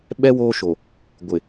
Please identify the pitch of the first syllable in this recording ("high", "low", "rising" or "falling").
high